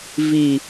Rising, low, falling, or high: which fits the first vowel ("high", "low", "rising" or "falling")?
low